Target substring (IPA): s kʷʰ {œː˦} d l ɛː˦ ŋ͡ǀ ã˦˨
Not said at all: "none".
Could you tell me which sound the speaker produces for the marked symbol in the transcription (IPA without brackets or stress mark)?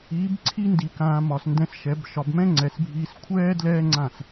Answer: ɛː˦